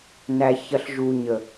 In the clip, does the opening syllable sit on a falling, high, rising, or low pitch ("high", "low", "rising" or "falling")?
low